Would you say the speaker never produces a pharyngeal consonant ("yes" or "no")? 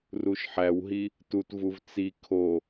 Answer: no